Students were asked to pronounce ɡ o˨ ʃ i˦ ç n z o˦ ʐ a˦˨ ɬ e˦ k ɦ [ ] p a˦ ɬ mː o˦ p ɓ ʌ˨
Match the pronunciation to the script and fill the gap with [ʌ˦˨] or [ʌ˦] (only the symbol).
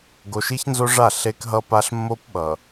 ʌ˦